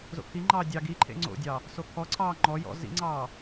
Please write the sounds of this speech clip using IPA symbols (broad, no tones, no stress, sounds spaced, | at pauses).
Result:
z o̰ kʰ i ŋ͡ǃ ɑː dʲ ɑ ɡ i ǃʰ ḛ ŋ͡ǀ o̰ dʲ ɑ | s o kʰ ɔ ǀʰ ɑː ŋ͡ǃ ɔ j ɔ̰ z ḭ ŋ͡ǀ ɑː